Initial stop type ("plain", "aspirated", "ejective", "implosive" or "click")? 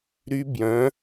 plain